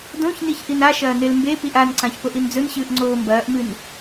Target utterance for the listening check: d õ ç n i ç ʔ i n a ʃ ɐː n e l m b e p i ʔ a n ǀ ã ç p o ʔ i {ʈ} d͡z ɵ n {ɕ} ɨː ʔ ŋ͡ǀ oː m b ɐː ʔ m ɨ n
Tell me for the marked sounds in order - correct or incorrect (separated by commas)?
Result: incorrect, correct